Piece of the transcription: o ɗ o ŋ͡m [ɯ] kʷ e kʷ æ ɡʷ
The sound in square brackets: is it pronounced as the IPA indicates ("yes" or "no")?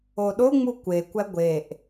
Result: no